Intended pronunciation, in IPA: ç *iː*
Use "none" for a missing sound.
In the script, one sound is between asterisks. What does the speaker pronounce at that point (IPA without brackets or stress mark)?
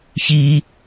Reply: iː